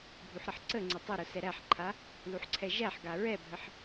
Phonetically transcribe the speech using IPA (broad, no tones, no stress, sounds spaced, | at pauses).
bʱ u ħ ɾ ʌ ħ ǀ ə ŋ͡ǀ ʌ tˤ ʊ ɾ ʊ s ɛ ɾ æ ħ ǃʰ a | l u ħ ǀʰ ɛ ʒ æ ħ ɡ a ɹ ɛ bʱ ə ħ